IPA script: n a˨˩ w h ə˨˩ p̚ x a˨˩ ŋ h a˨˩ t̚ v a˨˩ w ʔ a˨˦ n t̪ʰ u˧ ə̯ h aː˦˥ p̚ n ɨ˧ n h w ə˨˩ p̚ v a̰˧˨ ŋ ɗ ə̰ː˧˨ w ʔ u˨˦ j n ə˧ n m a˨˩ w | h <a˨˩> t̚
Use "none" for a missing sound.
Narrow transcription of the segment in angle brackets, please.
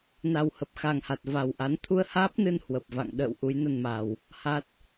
a˦˥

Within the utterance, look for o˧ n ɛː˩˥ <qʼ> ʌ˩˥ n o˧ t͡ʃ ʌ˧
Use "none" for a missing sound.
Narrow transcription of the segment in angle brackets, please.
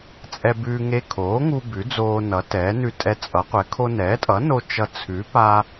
tʼ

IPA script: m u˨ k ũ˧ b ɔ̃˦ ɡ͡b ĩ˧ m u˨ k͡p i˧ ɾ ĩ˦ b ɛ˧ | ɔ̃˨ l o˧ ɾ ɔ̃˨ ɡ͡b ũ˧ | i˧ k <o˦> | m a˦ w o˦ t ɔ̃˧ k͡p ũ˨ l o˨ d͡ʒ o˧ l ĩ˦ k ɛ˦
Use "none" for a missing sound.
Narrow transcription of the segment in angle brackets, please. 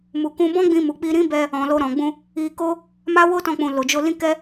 o˦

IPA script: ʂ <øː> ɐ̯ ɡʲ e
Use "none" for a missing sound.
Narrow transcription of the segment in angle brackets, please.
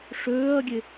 øː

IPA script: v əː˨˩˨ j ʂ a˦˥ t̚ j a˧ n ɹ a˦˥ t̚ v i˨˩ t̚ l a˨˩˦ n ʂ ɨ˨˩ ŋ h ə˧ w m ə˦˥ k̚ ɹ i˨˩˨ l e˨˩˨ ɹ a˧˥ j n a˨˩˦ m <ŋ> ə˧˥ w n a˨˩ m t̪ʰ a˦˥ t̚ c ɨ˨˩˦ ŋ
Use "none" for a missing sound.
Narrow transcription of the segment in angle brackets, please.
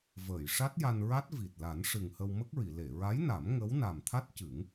ŋ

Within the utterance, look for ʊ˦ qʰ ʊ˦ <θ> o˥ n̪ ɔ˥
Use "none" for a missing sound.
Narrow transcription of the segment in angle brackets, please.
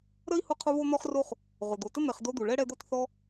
β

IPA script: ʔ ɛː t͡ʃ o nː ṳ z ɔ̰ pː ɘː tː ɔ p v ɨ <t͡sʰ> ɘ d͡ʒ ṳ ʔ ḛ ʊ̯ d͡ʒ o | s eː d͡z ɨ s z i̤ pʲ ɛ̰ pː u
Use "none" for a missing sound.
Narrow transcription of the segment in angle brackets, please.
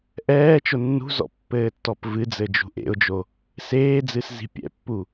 d͡z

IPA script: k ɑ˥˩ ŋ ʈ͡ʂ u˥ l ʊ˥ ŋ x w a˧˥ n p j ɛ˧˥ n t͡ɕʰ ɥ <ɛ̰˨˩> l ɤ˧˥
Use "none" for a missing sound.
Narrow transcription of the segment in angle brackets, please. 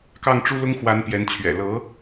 ɛ̰˨˩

